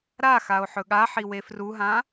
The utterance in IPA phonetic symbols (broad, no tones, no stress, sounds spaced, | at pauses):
ɾ a x a o̯ ħ ɵ ɠ a ħ i w e f r u ɦ ã